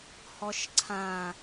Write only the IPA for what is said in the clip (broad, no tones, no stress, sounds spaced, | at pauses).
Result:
h ɔ ʃ ǀʰ ã